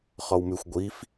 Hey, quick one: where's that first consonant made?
uvula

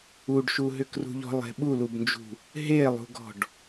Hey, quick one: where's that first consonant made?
retroflex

